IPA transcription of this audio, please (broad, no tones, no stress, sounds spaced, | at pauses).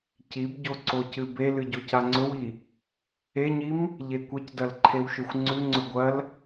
c i b ɟ o ǀ o c ɨ b e l ɨ ɟ o c a ŋ͡ǀ ɵ w i | e ɲ i m | ʎ e kʷ e c d ɐ l ǃʰ e w ʃ ɵ xʷ ŋ͡ǀ ʉ ŋ͡ǀ ɵ ɡʷ ɐ l